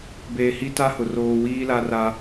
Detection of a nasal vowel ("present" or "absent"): absent